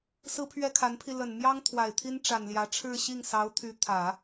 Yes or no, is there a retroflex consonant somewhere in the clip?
yes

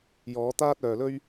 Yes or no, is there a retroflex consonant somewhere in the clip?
no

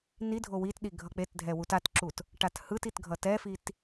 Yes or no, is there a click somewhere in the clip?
yes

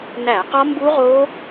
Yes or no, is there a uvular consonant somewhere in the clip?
yes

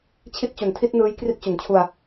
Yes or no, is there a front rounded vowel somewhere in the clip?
no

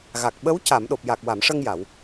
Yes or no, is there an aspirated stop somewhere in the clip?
no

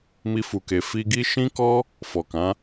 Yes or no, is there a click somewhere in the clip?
no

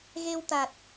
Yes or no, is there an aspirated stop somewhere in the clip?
no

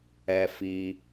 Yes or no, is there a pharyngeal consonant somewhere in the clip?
no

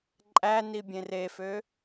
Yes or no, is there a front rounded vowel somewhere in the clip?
yes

